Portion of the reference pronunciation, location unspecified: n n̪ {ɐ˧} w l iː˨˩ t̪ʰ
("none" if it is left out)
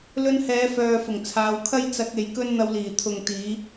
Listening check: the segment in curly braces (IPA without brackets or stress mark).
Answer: ɐ˧